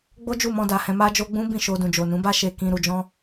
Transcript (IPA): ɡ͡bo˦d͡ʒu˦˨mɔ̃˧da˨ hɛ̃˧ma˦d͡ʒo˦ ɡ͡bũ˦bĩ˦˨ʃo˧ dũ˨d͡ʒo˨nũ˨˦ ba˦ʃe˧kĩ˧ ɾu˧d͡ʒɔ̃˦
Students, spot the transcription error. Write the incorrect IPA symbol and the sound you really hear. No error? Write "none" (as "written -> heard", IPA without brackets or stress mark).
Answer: none